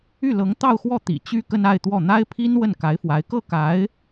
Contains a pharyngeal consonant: no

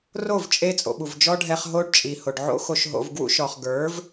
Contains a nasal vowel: no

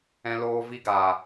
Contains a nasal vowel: yes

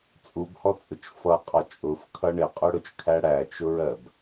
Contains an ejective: yes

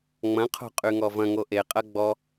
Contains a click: no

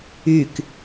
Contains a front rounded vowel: yes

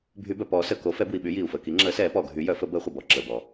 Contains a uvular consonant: yes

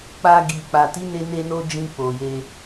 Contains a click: no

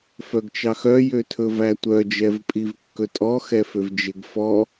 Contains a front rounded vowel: yes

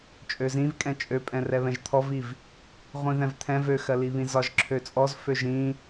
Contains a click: yes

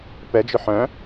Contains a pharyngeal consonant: yes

